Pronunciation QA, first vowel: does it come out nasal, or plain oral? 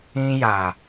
nasal